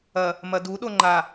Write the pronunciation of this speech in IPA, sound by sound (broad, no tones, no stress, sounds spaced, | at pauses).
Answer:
ɐ | m ɐ d u ɗ o ŋ͡ǃ a